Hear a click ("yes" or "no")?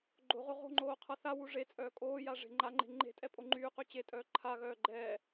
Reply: yes